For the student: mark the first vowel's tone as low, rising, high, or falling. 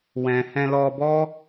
low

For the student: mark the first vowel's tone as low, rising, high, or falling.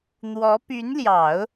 rising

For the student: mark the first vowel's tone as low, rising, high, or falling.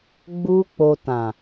high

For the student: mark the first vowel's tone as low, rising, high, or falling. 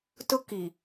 high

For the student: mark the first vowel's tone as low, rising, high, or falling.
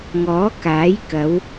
rising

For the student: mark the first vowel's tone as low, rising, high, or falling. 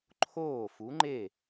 falling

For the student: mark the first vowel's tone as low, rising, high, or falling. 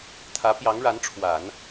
rising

